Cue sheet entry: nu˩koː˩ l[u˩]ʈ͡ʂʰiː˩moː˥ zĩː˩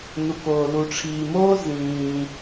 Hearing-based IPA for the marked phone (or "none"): u˩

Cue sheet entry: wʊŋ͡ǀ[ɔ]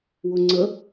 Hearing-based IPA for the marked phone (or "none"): ə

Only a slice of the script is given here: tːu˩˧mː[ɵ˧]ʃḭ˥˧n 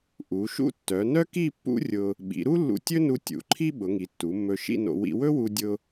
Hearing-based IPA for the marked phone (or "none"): ɵ˧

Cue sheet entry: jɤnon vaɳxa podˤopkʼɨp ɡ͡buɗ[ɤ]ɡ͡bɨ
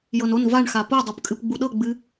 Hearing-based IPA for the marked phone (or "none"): ɤ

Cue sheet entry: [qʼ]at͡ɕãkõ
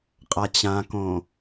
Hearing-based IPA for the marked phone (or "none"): qʼ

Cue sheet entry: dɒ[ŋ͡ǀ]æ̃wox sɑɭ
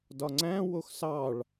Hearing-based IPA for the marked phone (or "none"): ŋ͡ǀ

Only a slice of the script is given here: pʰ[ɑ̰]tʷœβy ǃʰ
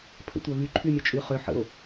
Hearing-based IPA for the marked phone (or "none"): ə̰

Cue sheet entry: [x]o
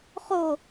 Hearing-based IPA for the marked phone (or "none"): χ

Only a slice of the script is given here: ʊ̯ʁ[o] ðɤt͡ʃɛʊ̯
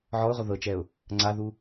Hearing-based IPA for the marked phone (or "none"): o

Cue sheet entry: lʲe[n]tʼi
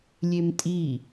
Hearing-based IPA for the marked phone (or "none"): m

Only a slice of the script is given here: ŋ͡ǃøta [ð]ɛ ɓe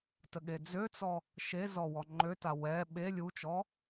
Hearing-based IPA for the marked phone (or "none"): w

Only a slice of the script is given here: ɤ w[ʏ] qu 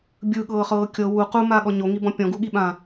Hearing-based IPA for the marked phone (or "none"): u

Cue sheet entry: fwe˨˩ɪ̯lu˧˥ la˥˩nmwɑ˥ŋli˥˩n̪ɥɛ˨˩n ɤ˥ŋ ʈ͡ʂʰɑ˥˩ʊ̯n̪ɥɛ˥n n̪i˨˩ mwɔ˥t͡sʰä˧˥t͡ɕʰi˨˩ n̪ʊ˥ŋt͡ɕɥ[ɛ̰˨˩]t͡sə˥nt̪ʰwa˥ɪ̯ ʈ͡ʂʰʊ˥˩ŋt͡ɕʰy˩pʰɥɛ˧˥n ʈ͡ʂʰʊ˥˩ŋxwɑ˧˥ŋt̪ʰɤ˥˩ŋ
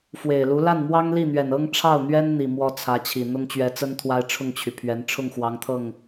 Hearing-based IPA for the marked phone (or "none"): ɛ˧˥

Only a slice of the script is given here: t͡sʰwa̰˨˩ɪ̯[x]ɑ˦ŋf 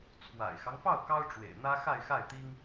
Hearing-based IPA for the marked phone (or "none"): x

